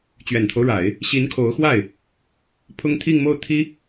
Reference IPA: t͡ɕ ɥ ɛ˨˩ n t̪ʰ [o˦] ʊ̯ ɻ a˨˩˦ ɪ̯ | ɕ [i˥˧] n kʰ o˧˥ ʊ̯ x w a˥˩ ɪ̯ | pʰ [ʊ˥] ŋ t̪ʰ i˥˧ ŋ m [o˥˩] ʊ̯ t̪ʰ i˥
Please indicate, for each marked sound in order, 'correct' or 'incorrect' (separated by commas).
correct, incorrect, correct, correct